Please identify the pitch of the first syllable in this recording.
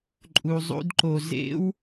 low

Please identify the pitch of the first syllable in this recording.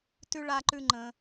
high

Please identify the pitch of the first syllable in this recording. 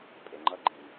low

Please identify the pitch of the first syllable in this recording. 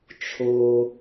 low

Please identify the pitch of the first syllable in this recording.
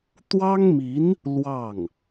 high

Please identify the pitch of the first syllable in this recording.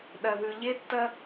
low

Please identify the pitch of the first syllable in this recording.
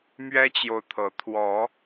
high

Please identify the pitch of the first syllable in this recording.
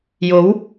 rising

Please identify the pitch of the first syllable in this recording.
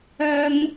high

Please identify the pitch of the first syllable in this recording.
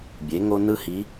rising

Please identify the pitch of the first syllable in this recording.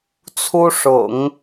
high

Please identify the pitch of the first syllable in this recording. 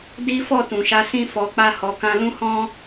high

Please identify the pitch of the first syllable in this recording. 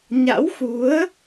rising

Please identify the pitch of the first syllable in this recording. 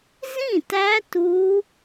falling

